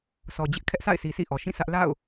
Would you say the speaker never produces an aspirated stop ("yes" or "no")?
no